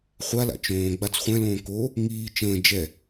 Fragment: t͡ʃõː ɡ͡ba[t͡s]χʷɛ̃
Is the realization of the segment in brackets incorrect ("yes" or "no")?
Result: no